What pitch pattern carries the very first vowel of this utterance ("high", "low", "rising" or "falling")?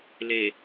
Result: low